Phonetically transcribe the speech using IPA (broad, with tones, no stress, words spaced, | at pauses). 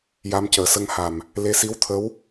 ja˧mcəː˨˩sə˧ŋ ha˨˩m | le˧˥si˧˥wt̪ʰə˧˥w